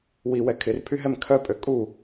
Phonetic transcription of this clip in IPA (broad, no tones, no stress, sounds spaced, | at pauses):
w i w ɛ kʰ ɪ r pʰ y ɦ ɛ m kʰ œ pʼ ø kʼ u